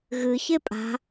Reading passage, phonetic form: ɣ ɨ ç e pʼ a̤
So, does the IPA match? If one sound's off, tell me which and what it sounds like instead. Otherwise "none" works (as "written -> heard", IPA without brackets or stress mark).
none